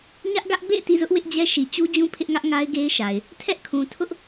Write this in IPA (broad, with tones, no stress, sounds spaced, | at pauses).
ɲ ä˦ ʔ ɡ ä˦ ʔ b ḛ˦˨ ɪ̯ t ḭ˦˨ z ʊ˦ ʔ w ɪ˦ ʔ d͡ʑ ɛ˦ ʃ i˨ t͡ɕ u˦ d͡ʑ ũ˦ pʰ ɪ˦ ʔ ŋ ä˦ ʔ ŋ a˦ ɪ̯ ɡ e˦ ɪ̯ ʃ a˨ ɪ̯ | tʰ ɛ˦ ʔ kʰ ũ˨ tʰ ʊ˦ ʔ